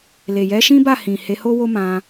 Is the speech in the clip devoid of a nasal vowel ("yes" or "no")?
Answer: no